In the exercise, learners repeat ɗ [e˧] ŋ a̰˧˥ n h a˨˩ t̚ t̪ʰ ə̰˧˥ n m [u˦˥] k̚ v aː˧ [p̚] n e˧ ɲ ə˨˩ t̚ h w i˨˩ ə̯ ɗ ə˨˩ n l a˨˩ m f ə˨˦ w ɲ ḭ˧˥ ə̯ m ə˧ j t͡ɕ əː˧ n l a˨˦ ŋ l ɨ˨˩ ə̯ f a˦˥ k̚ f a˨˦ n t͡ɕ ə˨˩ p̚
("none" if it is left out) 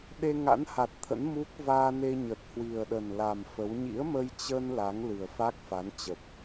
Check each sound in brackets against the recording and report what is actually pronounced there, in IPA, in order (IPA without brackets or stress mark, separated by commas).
e˧, u˦˥, none